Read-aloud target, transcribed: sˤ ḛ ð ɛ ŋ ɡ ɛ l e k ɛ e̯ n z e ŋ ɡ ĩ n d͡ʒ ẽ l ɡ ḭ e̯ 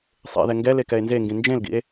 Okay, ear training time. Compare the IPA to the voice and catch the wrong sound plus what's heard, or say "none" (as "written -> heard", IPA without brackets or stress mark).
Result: none